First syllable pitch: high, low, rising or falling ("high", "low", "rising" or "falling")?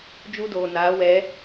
high